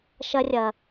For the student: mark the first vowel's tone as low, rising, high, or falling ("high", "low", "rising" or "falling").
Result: high